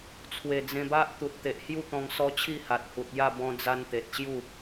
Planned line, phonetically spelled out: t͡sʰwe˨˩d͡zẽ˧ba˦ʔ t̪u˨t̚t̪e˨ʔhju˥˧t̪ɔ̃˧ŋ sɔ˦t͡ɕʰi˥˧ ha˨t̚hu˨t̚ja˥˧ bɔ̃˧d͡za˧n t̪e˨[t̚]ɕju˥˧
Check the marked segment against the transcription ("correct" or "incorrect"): correct